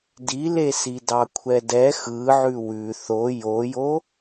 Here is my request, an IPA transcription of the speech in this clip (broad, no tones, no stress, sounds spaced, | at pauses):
d i l e s i d ɑ kʷʰ ɛ d ɛ x ɯ ʕ ʉ w ʉ θ o j o j o